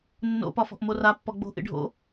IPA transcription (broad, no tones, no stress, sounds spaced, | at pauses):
nː o̰ p ɒ f ɔ̤ ʔ m o r a pː ɔ ɡ͡b o̤ ʔ ḭ ɖʱ o̰